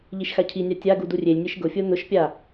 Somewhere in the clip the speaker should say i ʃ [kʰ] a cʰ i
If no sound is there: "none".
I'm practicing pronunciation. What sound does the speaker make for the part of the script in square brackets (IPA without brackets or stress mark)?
x